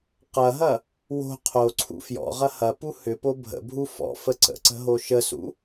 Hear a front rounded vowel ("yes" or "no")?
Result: yes